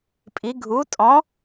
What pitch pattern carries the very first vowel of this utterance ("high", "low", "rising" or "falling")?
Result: rising